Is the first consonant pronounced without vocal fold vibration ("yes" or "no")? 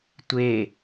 yes